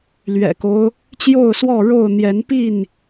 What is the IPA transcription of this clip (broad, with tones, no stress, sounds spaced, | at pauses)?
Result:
l ɥ ɛ̰˨˩ k o˦ ʊ̯ | t͡ɕ j o˥˨ ʊ̯ s w ɔ˥˨ ɻ o˥˨ ʊ̯ n̪ j ɛ˨˦ n p i˥˨ n